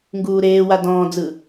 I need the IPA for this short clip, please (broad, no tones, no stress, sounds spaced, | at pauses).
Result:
ŋ ɡ uː ɾ eː w a d ɔ̃ː d͡z ɯ